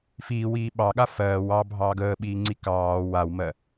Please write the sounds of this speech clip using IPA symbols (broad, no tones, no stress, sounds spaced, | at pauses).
f iː w iː ɓ ɑ ɠ a f ɜː w ɑ bʱ ɑː ɡ əː ɓ iː ŋ͡ǀ i k ɑː w a w m ɜ